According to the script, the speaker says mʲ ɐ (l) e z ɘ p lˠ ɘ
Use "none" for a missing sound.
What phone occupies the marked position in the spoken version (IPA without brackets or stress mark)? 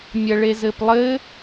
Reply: ɭ